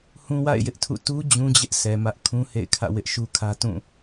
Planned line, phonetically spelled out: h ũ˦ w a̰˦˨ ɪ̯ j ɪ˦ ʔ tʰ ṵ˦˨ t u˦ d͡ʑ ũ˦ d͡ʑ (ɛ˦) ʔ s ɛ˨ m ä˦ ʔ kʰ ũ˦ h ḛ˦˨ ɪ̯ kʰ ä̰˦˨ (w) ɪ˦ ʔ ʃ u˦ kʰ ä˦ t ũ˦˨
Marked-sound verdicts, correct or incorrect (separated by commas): incorrect, correct